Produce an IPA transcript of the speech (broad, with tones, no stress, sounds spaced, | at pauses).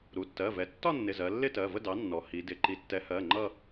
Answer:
ɾ u˩˧˩ tː ɜ˩˧˩ v ɛ˩˥ tː ɒ˥˧ nː ɪ˩˧˩ z ɜ˩˧ lː ɪ˥˧ t ɜ˩˧˩ v ə˥˧ d ɑ˩˥ nː ɔ˩˧ h i˩˧ d ɪ˩˧˩ ǃ i˩˥ tː ɛ˩˥ h ɜ˩˧˩ ŋ͡ǃ ʌ˥˧